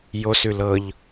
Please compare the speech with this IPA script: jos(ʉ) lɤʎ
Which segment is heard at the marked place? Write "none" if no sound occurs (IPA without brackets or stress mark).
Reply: ʉ